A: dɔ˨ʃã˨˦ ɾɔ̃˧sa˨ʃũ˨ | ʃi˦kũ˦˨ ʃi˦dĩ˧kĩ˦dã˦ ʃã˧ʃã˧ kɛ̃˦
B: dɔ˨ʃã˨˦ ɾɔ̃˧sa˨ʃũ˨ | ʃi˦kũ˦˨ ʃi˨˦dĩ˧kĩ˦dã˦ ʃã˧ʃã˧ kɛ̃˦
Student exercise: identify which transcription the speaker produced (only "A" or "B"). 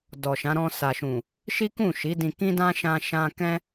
B